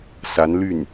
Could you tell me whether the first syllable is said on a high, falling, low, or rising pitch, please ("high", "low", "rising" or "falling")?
rising